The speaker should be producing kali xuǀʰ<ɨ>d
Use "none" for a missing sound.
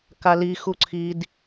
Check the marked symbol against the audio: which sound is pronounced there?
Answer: i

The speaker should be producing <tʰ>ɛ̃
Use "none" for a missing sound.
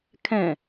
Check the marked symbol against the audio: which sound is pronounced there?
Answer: kʰ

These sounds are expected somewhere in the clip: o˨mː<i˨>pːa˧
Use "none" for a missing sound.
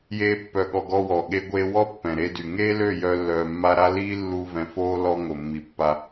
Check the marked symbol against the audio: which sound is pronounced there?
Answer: i˨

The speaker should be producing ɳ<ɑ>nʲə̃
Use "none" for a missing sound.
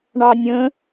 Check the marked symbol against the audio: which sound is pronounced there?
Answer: ɑ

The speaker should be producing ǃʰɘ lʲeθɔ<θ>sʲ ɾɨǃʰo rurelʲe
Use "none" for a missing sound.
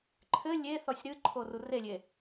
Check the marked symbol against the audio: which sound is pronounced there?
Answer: none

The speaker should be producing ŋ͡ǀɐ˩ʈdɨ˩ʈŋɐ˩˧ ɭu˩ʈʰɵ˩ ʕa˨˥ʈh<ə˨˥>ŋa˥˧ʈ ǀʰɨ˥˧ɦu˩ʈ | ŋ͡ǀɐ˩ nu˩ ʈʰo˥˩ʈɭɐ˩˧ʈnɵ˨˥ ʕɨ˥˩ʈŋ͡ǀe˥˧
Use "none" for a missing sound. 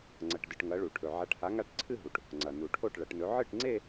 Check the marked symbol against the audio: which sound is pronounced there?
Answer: a˨˥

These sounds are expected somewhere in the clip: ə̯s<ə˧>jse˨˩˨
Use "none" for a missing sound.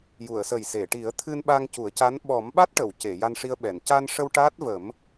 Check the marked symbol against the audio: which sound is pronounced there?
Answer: ə˨˩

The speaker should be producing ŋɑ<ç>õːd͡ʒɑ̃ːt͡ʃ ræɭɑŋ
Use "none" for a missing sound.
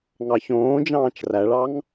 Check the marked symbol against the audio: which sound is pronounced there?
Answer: ç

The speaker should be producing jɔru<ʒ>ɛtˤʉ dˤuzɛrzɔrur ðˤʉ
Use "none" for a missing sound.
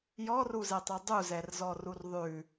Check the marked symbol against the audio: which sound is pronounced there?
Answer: z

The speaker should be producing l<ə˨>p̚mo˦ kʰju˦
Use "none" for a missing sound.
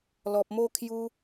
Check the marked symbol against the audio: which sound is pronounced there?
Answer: ɔ˨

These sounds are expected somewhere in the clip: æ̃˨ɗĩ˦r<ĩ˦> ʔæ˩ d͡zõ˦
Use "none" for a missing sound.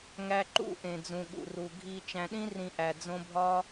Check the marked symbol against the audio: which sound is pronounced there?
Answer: ĩ˨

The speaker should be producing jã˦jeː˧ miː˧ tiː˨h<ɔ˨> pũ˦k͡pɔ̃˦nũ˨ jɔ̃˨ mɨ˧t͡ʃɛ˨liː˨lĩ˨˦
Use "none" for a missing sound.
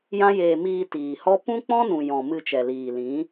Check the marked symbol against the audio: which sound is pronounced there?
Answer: ɔ˦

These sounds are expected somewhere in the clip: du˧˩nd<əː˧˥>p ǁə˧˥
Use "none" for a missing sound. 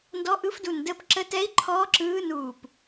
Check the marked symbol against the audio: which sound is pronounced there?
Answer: əː˧˥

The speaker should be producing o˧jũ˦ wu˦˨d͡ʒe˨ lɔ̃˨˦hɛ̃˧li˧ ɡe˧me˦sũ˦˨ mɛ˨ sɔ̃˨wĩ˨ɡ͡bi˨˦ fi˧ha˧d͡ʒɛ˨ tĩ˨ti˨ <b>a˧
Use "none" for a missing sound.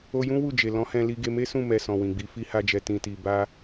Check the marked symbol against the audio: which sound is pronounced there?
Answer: b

